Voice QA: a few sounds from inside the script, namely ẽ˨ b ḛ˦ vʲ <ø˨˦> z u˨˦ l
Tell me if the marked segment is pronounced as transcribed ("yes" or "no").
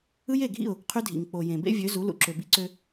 yes